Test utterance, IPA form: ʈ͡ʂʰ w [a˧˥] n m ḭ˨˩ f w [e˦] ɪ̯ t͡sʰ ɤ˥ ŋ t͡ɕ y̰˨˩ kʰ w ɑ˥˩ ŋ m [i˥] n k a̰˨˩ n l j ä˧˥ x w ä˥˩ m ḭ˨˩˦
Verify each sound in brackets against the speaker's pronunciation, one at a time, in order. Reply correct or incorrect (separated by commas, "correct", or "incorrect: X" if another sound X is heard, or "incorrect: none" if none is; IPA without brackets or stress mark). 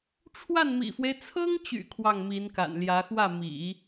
incorrect: a˥˩, correct, incorrect: i˧˥